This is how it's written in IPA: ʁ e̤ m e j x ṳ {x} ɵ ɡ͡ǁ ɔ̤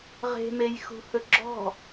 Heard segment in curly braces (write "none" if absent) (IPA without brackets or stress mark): h